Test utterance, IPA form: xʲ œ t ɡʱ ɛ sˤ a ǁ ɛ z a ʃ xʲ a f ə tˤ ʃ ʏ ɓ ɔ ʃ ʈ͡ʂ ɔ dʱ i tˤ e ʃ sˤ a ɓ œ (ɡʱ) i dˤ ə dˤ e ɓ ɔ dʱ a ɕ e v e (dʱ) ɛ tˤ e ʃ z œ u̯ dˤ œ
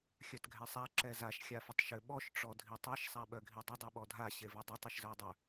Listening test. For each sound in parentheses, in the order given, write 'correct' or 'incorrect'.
correct, incorrect: dˤ

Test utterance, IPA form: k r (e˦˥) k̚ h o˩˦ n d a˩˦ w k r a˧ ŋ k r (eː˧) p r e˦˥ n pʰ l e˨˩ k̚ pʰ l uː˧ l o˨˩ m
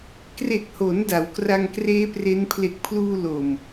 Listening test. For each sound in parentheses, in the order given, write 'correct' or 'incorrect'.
incorrect: e˨˩, incorrect: eː˦˥

